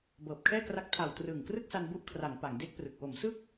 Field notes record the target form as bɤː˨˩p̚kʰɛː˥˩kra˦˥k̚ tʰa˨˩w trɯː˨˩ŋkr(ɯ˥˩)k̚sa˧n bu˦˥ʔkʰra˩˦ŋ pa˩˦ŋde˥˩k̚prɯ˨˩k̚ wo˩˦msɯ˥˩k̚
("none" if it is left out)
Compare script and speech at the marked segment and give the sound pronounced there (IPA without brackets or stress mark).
ɯ˥˩